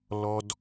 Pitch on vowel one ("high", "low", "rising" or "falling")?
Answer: low